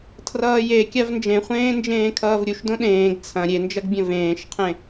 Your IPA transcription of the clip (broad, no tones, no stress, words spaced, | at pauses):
tʰrʌːje kʲavnd͡ʒẽχʷẽːnd͡ʒẽː kʰʌːvɾʲuʃdõ ɗẽːɡ t͡sʰɐ̃ ɾʲend͡ʒɐɡbʲɐ̃ vẽːʃqʰẽ